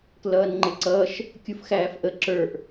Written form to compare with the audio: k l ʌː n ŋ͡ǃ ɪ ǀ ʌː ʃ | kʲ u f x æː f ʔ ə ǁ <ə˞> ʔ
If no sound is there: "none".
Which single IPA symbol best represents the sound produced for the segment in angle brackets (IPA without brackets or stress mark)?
ə˞